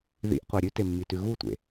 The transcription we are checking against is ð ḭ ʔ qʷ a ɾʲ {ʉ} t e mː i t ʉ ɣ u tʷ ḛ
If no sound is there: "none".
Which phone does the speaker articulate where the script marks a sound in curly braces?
ʉ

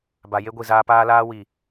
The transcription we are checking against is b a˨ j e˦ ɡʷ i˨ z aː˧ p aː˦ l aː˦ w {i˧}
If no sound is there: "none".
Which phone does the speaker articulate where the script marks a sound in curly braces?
i˨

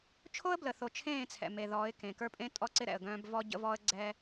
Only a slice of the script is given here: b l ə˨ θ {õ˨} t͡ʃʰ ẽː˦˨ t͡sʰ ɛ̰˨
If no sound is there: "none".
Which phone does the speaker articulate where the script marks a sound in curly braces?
o˨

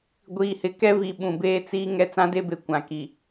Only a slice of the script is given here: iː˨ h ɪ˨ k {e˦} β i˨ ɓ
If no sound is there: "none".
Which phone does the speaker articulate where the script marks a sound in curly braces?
ɛ˦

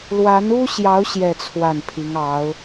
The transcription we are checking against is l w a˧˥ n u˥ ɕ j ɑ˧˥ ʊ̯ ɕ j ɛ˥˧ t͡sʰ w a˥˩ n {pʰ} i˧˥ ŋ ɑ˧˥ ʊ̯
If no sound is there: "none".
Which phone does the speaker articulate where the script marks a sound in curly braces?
pʰ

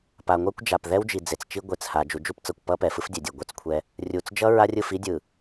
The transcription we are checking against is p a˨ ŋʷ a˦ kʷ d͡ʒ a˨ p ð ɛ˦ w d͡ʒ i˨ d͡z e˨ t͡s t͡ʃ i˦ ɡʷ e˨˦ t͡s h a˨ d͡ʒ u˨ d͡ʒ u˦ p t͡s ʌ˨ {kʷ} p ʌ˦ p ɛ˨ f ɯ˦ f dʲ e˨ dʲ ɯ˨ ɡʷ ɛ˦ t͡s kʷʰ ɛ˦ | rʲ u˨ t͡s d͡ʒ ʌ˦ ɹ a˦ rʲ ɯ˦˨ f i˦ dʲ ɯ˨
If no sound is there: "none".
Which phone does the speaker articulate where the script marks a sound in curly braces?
kʷ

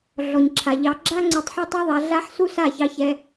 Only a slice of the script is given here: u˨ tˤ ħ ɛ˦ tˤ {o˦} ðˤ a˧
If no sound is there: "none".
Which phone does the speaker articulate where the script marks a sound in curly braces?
o˦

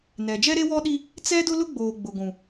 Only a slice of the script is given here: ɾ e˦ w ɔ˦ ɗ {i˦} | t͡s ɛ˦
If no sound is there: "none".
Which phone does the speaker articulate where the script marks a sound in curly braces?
i˦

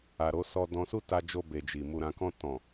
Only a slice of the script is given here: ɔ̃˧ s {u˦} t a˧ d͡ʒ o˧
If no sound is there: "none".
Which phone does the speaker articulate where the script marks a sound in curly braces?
u˦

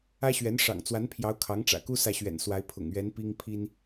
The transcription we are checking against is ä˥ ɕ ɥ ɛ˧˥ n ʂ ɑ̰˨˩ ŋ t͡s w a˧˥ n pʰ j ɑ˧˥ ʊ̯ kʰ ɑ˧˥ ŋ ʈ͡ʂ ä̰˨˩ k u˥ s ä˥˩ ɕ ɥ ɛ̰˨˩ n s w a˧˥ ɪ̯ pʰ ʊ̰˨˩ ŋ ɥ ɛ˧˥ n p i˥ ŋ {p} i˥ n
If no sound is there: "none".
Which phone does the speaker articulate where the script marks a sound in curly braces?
pʰ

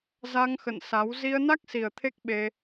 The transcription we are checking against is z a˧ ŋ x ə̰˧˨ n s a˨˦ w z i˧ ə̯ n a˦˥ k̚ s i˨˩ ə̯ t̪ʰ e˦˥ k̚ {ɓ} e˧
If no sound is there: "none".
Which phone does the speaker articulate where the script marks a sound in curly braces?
ɓ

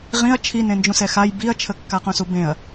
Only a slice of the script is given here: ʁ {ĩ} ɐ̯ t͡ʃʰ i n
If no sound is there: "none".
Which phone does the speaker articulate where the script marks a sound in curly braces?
ĩ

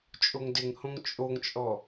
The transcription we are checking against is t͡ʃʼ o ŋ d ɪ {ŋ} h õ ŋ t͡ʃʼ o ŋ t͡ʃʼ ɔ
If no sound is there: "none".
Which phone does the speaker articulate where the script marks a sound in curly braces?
ŋ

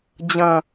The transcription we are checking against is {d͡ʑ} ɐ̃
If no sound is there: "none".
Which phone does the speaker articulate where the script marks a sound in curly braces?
d͡ʑ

